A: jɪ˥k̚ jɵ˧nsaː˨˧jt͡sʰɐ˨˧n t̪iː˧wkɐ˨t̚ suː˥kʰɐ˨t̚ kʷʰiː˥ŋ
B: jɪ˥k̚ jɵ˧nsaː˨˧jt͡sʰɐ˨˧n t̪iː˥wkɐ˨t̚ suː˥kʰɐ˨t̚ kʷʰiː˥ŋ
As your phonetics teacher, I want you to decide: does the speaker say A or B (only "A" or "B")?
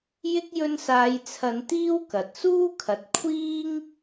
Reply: B